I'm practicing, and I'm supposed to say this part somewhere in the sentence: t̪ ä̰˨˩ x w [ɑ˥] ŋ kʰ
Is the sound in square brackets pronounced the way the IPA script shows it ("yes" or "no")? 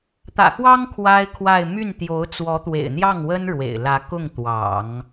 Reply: yes